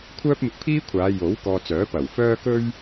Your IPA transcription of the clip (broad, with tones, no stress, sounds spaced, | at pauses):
kʷʰ œː˥ p̚ m ɪ˧ k̚ pʰ iː˥ kʷʰ aː˨˧ j o˨˥ w k ɔː˧ t͡s œː˨˥ p ɐ˨˩ w f œː˥ k ɵ˥ ɥ